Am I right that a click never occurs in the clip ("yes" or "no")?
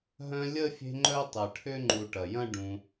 no